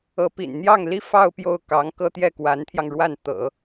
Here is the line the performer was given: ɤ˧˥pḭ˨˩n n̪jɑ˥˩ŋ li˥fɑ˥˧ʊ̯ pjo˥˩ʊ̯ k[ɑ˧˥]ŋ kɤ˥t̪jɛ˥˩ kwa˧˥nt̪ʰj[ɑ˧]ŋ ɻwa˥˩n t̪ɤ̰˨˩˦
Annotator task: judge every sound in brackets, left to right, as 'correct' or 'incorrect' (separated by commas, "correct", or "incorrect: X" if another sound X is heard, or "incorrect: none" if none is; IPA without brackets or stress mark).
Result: correct, correct